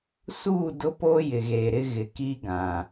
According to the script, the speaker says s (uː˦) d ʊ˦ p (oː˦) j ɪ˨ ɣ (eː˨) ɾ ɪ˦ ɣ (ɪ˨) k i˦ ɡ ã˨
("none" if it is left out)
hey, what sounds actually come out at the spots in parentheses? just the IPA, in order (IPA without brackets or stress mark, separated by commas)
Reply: uː˦˨, oː˦, eː˨, ɪ˨